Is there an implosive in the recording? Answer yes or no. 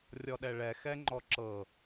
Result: yes